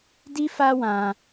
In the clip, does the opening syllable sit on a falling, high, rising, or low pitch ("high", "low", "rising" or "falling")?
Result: high